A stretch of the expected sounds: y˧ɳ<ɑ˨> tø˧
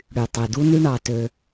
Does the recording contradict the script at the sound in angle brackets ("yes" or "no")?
no